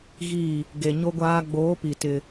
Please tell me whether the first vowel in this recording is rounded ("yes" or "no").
no